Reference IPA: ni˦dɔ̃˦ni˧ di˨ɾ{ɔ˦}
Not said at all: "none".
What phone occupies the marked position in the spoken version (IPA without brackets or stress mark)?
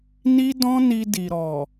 ɔ˨